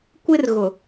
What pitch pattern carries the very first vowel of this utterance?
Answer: high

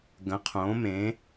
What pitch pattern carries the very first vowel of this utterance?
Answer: rising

